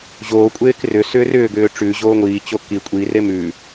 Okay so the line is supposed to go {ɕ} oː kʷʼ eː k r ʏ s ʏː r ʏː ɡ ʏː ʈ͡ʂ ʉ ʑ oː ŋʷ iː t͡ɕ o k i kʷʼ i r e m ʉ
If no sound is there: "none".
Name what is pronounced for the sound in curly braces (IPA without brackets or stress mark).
ʑ